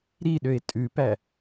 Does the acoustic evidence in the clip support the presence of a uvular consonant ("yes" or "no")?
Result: no